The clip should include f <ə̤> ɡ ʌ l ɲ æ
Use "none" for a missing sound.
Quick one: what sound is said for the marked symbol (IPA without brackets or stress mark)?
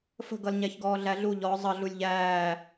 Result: ə̤